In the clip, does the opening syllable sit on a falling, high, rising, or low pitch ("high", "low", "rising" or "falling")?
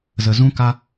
low